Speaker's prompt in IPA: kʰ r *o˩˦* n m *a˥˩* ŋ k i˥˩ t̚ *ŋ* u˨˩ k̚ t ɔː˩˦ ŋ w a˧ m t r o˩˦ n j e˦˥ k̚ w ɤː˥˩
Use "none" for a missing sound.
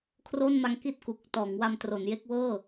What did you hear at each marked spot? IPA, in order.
o˥˩, a˧, k

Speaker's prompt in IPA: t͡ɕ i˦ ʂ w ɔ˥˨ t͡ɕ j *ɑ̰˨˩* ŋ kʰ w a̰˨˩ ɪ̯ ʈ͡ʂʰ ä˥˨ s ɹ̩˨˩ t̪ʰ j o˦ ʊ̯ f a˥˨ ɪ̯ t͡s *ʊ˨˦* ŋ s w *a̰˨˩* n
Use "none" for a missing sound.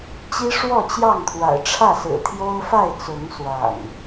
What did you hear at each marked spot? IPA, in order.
ɑ˥˨, ʊ˨˦, a̰˨˩

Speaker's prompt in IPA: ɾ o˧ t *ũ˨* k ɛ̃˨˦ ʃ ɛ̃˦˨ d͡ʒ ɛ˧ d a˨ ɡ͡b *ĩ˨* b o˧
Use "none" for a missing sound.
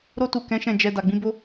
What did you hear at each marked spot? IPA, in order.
u˨, ĩ˧

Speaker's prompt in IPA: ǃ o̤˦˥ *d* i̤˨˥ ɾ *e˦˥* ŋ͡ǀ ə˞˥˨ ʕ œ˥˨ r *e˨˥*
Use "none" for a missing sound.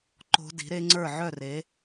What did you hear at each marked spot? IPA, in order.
d, e˦˥, e˨˥

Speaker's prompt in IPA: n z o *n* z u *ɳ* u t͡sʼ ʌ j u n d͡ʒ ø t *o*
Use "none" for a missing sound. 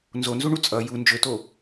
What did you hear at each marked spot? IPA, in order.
n, ɳ, o

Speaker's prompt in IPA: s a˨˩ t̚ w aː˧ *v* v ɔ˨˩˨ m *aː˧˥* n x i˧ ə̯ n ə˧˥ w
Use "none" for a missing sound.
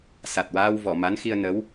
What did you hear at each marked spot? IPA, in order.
w, a˧˥

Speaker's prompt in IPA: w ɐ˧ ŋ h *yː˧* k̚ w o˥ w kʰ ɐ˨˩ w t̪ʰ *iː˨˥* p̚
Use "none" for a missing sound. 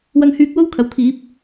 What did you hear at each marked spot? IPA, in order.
yː˧, iː˨˥

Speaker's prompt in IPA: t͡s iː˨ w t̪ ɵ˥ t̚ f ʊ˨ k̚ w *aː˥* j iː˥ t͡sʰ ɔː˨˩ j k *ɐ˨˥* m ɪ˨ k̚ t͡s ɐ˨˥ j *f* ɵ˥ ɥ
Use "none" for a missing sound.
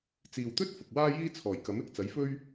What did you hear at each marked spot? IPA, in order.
aː˥, ɐ˨˥, f

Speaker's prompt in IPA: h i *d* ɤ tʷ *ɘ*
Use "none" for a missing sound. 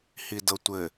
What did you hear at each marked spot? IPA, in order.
d, ɘ

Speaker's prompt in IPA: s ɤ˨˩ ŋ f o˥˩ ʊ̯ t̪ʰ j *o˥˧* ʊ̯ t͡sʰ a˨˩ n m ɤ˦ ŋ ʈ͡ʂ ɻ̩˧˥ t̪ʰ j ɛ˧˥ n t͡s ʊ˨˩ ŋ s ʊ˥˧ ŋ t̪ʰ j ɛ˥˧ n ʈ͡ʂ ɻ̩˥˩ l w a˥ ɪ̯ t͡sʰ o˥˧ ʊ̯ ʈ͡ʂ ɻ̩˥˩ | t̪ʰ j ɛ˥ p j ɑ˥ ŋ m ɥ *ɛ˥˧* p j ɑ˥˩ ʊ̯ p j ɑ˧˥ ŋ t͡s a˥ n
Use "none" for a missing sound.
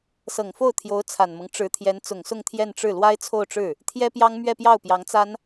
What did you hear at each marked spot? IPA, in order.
o˧˥, ɛ˥˧

